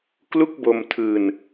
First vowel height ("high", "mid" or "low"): high